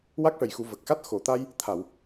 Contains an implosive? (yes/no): no